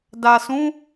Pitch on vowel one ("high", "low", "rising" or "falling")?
low